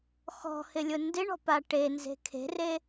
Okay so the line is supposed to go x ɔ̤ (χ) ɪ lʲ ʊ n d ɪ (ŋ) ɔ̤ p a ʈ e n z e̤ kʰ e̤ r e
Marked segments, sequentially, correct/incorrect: incorrect, incorrect

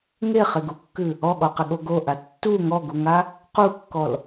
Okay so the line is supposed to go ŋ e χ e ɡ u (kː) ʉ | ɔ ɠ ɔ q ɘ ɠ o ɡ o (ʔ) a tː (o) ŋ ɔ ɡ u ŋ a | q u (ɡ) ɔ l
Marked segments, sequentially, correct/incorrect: correct, correct, incorrect, incorrect

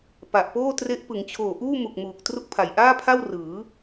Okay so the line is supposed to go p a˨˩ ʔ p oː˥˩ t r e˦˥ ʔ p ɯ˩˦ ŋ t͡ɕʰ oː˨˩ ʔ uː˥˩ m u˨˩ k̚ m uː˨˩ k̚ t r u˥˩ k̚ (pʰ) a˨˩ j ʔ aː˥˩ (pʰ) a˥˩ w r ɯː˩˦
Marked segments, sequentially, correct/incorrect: correct, correct

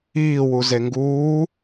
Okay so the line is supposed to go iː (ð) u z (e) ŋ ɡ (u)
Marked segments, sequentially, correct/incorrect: incorrect, correct, incorrect

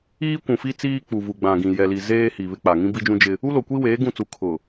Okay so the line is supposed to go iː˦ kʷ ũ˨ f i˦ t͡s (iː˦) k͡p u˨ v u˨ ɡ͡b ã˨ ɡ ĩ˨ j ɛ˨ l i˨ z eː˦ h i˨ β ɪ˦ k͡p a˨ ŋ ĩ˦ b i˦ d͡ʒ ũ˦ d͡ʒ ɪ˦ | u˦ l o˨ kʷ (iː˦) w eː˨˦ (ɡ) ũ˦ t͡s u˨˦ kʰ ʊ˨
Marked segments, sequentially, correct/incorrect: correct, incorrect, correct

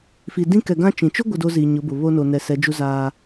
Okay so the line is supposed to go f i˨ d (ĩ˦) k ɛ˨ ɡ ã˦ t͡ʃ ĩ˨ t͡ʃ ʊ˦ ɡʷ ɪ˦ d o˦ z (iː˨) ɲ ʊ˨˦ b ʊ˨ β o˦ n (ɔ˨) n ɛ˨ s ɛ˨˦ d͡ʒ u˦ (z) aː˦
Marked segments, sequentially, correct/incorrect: correct, correct, incorrect, correct

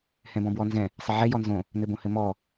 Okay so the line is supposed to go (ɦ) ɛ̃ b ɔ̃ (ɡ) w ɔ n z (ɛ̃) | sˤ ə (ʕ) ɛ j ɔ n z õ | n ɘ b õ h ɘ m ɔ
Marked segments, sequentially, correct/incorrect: incorrect, incorrect, correct, correct

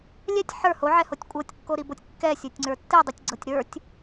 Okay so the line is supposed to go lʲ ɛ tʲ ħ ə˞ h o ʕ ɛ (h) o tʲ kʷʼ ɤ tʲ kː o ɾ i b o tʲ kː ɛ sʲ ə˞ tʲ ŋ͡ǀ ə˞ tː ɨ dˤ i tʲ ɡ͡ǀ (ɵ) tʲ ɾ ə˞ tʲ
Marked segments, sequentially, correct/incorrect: correct, incorrect

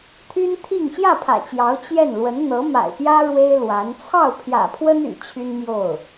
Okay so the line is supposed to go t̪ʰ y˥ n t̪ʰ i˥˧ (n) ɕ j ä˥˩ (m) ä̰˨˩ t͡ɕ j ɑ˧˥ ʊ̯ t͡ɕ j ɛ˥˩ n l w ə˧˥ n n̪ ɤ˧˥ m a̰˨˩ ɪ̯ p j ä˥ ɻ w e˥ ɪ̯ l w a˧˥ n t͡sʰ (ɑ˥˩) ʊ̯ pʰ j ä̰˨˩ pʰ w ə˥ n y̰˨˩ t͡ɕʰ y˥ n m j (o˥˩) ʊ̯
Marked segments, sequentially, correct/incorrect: incorrect, incorrect, correct, correct

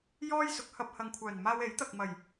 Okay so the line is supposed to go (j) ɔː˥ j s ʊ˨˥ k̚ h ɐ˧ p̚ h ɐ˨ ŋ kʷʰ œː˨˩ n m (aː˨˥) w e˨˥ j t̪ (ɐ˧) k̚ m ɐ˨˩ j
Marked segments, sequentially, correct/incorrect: correct, incorrect, incorrect

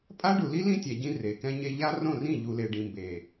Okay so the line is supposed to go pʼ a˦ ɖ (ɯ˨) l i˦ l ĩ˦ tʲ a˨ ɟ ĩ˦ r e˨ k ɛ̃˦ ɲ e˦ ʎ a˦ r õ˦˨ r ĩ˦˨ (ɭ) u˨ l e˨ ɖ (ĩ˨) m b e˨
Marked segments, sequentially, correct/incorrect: incorrect, incorrect, correct

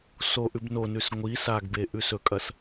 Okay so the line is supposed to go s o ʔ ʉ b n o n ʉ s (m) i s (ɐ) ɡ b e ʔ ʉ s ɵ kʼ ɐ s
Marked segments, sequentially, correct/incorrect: incorrect, incorrect

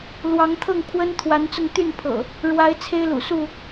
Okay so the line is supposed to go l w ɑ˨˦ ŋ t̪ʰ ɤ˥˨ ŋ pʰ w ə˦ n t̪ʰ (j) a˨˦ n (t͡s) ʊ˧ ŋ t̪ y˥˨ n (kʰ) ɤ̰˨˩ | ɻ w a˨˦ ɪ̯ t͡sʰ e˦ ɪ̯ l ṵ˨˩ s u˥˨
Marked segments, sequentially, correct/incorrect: incorrect, correct, incorrect

